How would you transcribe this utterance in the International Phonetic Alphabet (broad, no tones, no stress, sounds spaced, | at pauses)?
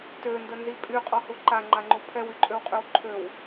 t ø n d ə n z i pʼ y qʼ ɔ h u ǃ a ŋ͡ǃ a ŋ͡ǃ u pʰ ɛ w y ǃʼ ø w qʼ y w ǃʰ ø w